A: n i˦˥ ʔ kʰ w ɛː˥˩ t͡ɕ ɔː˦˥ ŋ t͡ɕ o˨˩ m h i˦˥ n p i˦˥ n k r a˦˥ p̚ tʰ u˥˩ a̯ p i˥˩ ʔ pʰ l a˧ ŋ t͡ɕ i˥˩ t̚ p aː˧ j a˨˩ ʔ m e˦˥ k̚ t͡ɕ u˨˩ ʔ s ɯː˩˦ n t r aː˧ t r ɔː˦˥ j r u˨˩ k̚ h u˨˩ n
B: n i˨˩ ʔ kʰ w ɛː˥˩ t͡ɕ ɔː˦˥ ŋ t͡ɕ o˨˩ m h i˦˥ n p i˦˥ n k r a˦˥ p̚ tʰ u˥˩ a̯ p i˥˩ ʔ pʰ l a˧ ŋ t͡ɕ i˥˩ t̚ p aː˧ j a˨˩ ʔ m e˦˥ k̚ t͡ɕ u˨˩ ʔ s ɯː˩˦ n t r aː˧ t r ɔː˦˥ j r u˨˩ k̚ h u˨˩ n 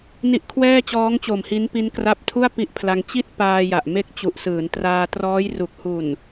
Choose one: A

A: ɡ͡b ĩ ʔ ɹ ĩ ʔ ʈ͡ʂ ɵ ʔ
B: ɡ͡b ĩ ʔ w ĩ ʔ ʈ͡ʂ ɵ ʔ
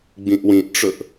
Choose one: B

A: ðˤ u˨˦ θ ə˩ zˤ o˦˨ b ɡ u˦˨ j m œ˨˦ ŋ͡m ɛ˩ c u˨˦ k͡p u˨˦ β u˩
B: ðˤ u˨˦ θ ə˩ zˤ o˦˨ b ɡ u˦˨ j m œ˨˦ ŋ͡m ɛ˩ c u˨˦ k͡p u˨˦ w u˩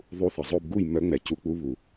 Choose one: A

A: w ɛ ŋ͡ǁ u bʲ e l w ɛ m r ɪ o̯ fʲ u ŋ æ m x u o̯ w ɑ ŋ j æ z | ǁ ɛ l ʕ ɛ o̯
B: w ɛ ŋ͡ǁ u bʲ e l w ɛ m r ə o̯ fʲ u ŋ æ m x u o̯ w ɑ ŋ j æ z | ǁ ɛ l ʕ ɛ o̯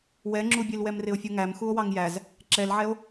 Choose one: A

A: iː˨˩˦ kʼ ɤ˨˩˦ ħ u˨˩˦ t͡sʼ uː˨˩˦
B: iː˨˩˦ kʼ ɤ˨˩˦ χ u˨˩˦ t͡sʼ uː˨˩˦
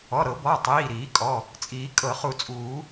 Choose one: B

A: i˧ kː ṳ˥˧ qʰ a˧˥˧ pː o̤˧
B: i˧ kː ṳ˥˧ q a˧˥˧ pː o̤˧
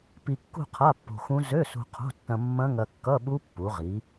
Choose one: A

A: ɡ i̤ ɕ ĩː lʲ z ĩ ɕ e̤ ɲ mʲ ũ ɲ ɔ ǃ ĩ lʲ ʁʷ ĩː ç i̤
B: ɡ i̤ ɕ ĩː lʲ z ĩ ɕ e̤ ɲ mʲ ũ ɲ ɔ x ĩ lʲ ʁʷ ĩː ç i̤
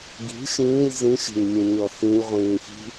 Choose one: B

